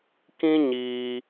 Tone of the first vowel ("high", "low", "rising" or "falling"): high